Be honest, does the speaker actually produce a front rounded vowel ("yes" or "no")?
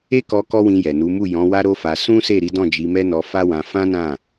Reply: no